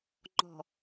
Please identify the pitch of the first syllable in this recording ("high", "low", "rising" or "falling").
low